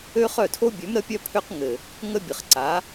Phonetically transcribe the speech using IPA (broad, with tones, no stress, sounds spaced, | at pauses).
ø˦ χ œ˦˨ tʰ o˦ bʲ ø˨˦ m ɾ ə˦ pʲ œ˦ pʰ ø˦ q ŋ ɘ˨ | ŋ ə˦ bʲ ɘ˨ χ ǀ a˨˦